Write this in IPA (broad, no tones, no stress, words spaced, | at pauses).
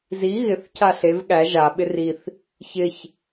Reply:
zi ɣɪθ cʰaɬev ɠæ ʒa ɓɪriθ | çɪç